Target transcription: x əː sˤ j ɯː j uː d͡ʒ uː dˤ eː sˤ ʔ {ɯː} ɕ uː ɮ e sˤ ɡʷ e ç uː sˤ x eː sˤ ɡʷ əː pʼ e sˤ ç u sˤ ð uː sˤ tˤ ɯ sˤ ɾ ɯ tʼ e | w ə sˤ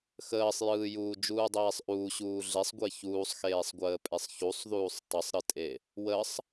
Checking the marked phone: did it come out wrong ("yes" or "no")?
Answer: yes